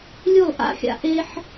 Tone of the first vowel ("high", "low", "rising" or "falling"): falling